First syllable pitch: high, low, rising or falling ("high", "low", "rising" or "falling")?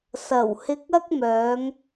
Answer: low